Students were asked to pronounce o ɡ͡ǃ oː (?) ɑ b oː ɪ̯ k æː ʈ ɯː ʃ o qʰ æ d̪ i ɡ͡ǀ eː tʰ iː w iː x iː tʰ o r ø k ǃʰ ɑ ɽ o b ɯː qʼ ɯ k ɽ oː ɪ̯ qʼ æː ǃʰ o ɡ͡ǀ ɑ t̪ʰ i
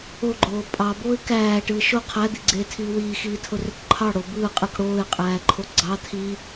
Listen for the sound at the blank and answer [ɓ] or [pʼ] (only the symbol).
pʼ